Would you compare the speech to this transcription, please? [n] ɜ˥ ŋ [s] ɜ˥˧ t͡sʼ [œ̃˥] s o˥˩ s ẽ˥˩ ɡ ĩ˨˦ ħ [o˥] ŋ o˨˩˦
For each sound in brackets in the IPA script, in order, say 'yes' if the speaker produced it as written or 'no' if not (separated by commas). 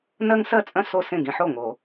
yes, yes, yes, no